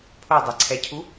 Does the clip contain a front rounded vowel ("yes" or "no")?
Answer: no